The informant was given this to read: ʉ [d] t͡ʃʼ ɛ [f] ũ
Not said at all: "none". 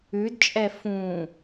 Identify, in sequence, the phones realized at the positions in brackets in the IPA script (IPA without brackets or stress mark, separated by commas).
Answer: d, f